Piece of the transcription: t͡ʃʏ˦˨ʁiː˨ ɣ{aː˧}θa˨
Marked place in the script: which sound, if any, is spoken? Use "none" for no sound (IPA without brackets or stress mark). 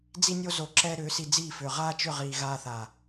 aː˧